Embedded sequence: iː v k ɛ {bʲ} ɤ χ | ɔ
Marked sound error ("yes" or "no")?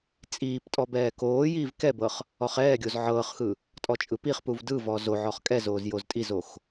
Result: yes